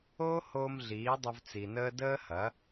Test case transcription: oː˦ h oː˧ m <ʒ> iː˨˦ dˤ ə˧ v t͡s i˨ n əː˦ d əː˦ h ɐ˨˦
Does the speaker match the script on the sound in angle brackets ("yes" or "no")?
no